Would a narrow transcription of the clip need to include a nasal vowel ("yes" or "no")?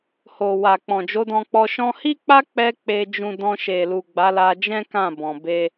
yes